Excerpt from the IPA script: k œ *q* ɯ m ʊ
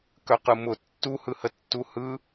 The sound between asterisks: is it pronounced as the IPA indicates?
yes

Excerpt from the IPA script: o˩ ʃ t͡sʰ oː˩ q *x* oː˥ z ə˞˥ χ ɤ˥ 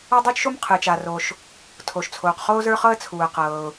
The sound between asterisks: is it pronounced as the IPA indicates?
no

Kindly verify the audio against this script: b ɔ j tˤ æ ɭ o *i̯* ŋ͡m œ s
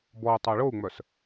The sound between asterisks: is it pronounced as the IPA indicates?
no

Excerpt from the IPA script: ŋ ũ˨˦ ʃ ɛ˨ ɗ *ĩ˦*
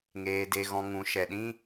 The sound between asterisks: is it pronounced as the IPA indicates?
yes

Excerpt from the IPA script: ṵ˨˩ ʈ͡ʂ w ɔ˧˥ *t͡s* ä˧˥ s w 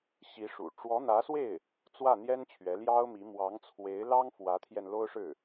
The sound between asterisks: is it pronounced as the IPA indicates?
no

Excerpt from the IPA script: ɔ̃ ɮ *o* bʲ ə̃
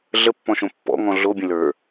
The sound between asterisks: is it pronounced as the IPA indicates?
yes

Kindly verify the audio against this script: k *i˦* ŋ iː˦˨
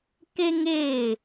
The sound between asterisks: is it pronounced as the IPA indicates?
yes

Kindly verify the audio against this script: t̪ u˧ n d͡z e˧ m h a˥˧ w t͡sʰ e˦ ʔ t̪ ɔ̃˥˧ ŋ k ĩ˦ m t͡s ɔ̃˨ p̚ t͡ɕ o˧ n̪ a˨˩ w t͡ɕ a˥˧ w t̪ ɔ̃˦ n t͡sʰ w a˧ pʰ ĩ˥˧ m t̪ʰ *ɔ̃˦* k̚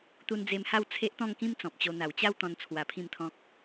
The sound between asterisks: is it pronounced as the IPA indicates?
yes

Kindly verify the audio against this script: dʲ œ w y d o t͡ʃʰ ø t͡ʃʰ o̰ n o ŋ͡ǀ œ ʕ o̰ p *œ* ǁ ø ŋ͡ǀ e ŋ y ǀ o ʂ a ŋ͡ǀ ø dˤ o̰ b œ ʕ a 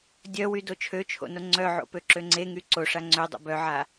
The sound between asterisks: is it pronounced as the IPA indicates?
no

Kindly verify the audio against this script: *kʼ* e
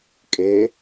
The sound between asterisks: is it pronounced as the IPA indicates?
yes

